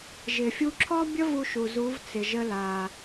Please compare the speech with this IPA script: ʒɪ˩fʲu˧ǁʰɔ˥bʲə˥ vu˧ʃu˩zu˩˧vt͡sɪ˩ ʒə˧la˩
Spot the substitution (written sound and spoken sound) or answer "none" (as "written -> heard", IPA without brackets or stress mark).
none